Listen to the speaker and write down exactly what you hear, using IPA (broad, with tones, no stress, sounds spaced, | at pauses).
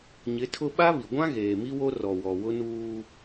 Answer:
ɲ ɪ˨˦ tʰ ʊ˦ ɓ a˦ β i˨ ɡʷ ã˦ ɣ eː˨ m i˦ w o˦ r ɔ˨ w ɔ˨ w ʊ˦ n uː˦